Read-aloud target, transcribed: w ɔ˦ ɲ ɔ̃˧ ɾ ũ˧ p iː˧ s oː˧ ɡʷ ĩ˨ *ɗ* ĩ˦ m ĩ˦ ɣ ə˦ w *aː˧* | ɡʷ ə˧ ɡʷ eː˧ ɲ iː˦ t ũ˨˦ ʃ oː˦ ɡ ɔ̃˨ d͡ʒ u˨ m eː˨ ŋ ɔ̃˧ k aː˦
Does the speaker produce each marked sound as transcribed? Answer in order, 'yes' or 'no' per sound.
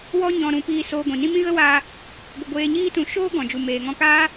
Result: no, yes

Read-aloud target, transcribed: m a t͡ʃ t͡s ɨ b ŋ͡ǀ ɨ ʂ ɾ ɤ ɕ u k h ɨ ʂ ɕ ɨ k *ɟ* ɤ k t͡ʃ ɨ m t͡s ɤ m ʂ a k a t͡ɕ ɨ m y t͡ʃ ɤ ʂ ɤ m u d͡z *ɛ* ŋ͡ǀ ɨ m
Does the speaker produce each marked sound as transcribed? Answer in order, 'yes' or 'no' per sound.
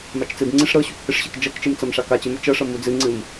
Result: no, no

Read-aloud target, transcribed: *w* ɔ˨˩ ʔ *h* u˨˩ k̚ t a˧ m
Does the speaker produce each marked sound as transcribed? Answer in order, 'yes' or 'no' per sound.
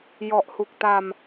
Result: no, yes

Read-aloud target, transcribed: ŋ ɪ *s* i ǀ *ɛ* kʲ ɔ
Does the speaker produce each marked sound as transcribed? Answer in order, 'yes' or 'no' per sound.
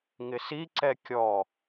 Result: yes, yes

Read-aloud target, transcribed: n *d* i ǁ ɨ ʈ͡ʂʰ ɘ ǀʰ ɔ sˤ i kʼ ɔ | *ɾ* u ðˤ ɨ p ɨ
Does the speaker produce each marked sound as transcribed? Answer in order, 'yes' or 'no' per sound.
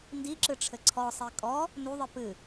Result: yes, no

